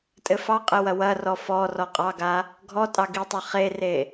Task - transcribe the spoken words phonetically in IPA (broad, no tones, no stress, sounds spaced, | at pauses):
tʼ ɘ f ɑ qʼ ɘ w ɐ w ɐ r ɔ f ɔ r ɔ qʼ ɑ ɡ a | ɡʱ ɔ tʼ ɑ ɡ i tˤ a χ e r e